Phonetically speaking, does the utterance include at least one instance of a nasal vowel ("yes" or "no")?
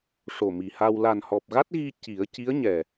no